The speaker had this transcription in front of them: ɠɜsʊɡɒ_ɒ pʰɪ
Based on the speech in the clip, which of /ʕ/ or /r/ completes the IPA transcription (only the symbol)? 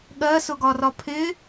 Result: r